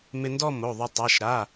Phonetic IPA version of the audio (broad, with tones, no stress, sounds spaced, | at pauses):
m ɪ˧ n d ɔ˥˧ m o˩˧˩ ðˤ ʊ˧ tˤ a˩˧˩ ʃ ɾ a˩˧˩